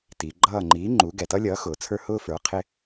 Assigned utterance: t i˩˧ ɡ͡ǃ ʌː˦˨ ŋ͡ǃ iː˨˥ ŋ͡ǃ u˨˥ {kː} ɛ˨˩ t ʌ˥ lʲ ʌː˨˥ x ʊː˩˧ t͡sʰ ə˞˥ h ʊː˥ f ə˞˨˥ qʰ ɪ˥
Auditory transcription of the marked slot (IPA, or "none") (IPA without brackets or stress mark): ɡ